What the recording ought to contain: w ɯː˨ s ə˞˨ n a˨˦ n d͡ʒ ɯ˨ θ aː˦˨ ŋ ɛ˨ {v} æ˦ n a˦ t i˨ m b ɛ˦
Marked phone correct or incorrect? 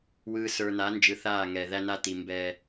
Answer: incorrect